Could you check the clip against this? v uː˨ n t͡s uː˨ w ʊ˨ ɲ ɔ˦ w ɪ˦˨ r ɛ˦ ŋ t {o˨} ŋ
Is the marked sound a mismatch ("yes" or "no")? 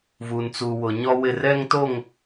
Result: yes